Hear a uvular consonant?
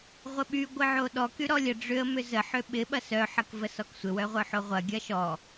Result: yes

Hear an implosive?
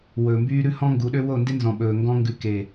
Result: yes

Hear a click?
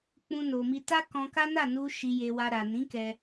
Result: no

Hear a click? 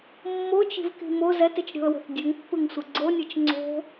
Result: yes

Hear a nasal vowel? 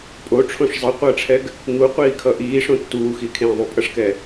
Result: yes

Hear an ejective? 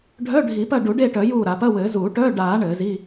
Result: no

